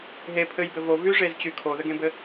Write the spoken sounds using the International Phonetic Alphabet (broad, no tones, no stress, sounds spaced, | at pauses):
ɦ e pʰ ɘ j b ɘ v o v y ʐ e z t͡ɕ y kʰ o ð ɘ ɡ ẽ b ɘ